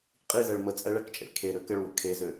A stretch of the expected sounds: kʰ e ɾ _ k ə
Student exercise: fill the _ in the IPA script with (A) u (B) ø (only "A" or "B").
B